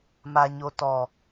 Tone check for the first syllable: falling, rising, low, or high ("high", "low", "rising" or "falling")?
low